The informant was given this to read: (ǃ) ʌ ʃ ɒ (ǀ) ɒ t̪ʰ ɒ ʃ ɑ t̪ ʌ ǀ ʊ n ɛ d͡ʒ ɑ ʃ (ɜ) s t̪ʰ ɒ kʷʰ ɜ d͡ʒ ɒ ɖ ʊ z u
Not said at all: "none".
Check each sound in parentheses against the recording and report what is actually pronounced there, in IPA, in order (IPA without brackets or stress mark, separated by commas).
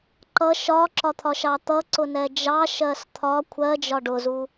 ǃ, ǁ, ɜ